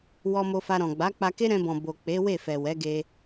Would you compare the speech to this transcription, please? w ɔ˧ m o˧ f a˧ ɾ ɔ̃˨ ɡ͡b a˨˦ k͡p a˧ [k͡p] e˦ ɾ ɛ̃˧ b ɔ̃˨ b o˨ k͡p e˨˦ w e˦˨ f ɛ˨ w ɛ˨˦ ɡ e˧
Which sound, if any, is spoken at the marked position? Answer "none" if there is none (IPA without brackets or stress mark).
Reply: k